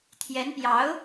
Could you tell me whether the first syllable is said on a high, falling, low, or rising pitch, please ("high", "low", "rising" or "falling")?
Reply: rising